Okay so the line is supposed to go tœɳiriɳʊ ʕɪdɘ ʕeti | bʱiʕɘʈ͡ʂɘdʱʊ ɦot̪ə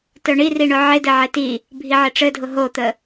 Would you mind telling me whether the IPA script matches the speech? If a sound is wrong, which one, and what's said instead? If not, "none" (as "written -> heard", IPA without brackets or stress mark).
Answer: none